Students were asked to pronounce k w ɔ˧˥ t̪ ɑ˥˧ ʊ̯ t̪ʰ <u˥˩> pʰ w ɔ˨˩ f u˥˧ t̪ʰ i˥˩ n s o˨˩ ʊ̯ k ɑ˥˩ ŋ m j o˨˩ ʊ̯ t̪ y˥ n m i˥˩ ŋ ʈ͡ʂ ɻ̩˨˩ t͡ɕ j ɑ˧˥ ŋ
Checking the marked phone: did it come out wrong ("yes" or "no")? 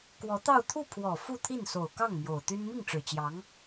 no